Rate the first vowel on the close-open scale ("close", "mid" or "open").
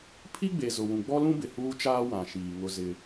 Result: close